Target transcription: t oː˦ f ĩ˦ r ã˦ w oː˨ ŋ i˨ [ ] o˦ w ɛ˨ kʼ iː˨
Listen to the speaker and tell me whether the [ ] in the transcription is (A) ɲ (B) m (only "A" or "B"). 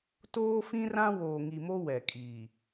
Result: B